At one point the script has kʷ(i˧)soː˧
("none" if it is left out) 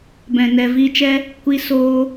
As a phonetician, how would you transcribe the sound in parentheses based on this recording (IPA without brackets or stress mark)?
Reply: i˧